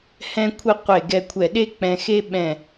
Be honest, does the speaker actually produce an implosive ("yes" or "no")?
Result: yes